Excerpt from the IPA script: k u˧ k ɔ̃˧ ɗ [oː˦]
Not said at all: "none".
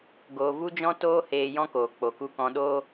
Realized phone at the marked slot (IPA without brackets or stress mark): oː˦